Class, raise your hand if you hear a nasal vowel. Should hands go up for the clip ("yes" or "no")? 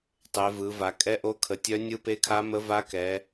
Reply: no